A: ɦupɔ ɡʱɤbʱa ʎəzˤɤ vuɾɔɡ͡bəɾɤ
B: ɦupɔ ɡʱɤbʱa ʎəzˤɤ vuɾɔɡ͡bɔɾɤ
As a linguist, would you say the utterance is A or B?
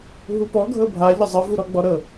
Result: B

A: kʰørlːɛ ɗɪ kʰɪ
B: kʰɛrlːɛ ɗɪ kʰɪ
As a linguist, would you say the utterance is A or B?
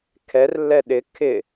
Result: B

